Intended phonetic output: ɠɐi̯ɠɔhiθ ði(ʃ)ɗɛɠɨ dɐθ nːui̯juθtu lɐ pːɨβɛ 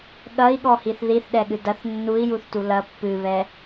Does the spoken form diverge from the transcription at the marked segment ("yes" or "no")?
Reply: yes